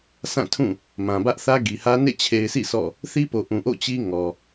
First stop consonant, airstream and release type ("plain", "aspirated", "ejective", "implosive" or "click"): aspirated